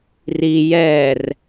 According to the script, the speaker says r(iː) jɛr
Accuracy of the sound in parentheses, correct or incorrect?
incorrect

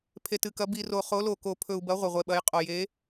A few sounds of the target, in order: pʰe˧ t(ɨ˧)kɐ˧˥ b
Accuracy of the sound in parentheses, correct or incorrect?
correct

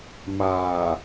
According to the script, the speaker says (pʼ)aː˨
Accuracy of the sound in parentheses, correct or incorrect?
incorrect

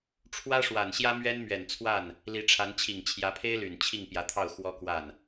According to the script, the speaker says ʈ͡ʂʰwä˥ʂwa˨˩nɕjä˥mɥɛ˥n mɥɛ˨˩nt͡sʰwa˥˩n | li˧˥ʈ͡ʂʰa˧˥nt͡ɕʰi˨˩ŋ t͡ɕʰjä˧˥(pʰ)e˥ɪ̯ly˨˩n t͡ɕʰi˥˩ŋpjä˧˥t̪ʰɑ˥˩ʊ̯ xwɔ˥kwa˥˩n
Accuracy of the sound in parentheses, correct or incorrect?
correct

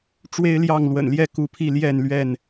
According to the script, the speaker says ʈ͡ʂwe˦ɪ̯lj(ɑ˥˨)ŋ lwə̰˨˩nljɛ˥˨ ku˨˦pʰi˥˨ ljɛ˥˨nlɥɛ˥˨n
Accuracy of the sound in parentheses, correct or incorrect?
correct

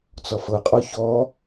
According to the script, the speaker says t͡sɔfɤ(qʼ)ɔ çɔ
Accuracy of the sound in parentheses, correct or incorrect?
correct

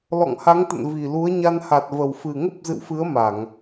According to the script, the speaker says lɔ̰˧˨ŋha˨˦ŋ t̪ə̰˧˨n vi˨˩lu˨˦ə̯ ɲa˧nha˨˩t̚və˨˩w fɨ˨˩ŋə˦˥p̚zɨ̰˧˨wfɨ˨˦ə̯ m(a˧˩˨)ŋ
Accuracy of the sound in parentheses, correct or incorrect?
correct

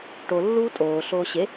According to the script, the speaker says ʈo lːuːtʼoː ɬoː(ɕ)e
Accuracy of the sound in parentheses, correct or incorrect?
correct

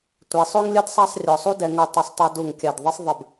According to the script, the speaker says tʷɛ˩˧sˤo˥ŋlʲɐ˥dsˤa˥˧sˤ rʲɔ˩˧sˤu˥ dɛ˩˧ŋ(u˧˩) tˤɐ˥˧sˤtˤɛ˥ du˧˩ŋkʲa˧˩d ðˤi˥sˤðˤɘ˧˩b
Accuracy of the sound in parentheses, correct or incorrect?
correct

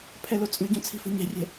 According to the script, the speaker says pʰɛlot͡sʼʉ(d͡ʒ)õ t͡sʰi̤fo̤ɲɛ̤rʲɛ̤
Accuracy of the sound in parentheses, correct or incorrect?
incorrect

